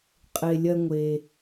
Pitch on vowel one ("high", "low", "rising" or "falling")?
low